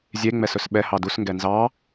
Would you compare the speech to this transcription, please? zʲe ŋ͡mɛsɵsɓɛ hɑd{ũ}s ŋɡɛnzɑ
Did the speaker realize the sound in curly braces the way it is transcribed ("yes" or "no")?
no